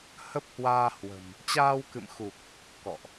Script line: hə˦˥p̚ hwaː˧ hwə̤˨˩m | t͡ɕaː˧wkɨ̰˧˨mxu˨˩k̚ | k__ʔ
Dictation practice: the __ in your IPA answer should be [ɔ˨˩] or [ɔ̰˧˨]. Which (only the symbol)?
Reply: ɔ̰˧˨